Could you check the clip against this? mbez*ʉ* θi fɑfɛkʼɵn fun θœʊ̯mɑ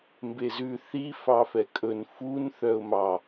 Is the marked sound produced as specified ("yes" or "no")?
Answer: yes